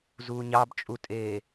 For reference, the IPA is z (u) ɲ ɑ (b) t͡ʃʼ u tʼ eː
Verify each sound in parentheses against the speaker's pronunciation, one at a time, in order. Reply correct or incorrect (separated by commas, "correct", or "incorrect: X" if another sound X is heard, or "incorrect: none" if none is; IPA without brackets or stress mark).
incorrect: uː, correct